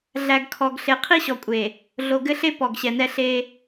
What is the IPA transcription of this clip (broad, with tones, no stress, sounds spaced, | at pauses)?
ɮ æ˨ ɡ kʰ ɔ˨ ɡ ɬ e˨ qʰ i˦ ɕ ɔ˨ kʷʼ eː˨ | ɮ o˨ ɡ ɘ˦ ɬ e˦ p ɔ˨ ɡ ɕ ɛ˨ n ɛ˦ ɬ eː˦